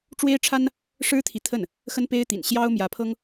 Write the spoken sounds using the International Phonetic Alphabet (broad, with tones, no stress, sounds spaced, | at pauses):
ʈ͡ʂ w e˥ ɪ̯ ʈ͡ʂʰ a˥ n | ʂ ɻ̩˥ t̪ʰ i˨ t̪ʰ ə˥˩ n | x ə˥ n p e˥ ɪ̯ t̪ ḭ˨˩ n ɕ j ɑ˥ ʊ̯ m j ä˧˥ pʰ ɤ˥ ŋ